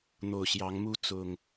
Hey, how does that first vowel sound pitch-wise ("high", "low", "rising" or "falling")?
low